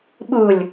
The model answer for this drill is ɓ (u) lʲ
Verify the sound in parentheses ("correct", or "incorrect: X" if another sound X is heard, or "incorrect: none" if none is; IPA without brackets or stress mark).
correct